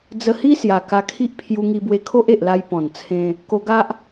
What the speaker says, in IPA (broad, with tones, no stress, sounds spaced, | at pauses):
d͡z ə˧ h i˦ s j a˨˩ k a˧ kʰ i˦ ʔ pʰ j u˧ ŋ i˧ b w e˧ kʰ o˦ ʔ e˨ ʔ l a˧ j p ɔ̃˨˩ n t͡sʰ ẽ˧ | k o˧ ɡ a˦ ʔ